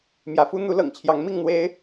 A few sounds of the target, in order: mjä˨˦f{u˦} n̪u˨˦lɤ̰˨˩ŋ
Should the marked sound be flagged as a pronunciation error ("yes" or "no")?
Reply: no